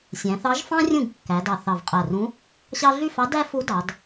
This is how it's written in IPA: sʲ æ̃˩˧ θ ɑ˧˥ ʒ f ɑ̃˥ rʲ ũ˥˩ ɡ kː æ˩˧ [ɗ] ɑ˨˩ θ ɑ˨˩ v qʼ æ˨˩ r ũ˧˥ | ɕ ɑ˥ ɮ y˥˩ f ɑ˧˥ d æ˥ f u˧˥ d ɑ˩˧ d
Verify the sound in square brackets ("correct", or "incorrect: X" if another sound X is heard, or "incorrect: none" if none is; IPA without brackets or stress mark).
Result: incorrect: d